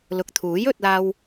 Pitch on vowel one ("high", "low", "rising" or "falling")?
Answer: low